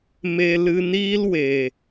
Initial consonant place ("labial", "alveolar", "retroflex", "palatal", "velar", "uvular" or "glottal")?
labial